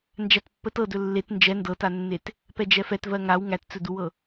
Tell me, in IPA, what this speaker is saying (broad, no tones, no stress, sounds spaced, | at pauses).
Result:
n d͡ʒ æ t pː ə t ɤ d ɵ lː e t n d͡ʒ ɛ n d ɤ t a nː e t | p ɛ d͡ʒ ɛ f ɛ t v ɜ ŋ a w ŋ æ t t͡s ɵ d u w ɤ